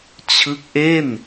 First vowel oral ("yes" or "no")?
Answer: yes